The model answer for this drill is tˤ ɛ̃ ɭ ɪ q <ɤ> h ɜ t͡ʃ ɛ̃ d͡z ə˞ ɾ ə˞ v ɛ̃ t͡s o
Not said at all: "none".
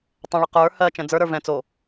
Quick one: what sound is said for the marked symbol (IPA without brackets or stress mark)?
ə˞